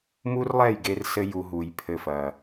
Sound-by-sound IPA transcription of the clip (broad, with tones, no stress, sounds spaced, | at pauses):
m u˦ r lˠ ɛ˦˨ j ɡ e˧ r s ɘ˦ j u˧ ɦ u˨ j pʰ ɘ˧ f ɐ˨